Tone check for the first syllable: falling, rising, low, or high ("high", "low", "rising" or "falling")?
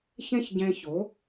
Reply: high